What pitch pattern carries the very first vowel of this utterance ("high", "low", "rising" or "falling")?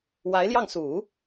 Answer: rising